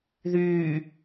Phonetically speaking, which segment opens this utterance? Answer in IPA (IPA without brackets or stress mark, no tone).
ð